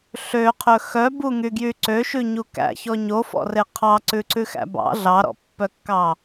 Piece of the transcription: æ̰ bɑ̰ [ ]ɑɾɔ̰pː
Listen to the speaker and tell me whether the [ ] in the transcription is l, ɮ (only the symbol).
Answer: ɮ